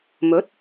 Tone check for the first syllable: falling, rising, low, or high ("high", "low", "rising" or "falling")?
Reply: rising